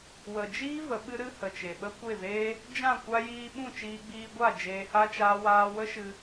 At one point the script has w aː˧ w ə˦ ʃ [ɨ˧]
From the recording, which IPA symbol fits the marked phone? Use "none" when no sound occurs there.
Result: ɨ˧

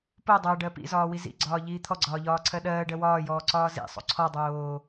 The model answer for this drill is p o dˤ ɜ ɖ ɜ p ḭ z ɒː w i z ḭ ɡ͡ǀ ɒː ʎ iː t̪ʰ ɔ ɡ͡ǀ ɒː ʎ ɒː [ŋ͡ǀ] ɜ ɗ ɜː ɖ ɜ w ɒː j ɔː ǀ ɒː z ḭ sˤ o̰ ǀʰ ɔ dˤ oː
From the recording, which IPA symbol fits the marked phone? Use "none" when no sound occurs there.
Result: ǀʰ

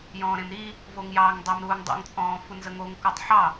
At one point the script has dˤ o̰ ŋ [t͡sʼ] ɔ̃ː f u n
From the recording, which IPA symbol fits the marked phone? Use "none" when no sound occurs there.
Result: t͡sʼ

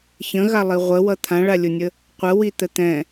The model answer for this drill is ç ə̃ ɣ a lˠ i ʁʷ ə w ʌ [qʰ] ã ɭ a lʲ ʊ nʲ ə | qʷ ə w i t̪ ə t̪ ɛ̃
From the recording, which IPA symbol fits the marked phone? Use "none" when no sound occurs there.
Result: t̪ʰ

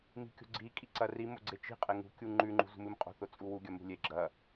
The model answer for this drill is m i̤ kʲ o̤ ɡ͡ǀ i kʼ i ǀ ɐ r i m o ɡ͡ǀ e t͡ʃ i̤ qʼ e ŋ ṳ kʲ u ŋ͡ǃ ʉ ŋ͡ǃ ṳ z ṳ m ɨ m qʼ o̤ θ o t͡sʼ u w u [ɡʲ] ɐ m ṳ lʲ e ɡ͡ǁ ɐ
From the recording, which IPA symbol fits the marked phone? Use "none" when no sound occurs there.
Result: ɡʲ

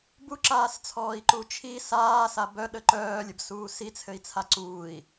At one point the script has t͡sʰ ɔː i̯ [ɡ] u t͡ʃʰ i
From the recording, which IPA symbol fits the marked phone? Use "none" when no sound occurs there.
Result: ǃ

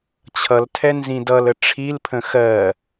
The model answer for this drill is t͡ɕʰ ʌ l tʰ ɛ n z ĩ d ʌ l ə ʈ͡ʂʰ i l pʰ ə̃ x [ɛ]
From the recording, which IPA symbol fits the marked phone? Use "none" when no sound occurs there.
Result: ɜ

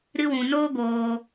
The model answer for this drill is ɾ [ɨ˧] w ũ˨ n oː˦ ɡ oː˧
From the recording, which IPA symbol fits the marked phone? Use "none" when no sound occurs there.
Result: ɨ˧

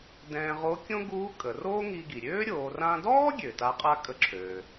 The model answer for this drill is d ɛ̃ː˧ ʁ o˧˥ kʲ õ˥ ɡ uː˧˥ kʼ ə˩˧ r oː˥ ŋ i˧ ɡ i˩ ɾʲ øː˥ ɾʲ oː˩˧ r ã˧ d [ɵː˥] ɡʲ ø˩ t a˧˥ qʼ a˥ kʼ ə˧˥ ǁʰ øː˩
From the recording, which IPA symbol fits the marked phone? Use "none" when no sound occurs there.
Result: ɔː˥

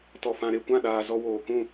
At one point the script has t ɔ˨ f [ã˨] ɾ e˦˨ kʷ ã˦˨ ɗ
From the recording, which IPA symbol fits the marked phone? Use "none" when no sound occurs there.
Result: ã˨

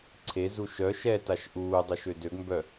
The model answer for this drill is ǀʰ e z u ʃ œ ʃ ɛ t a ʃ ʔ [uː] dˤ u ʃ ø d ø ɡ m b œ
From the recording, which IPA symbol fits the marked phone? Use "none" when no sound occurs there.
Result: uː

